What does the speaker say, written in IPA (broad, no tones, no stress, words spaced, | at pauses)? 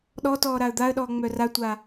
ɗɔtɔː ɾaə̯d̪aə̯ɗɔː ŋ͡mœratʷa